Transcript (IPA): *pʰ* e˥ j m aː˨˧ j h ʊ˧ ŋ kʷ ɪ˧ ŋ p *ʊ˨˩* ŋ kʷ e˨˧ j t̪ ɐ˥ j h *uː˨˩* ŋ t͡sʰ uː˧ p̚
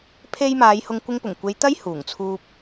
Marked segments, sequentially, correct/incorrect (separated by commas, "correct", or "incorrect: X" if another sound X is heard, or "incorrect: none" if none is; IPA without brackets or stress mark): correct, correct, correct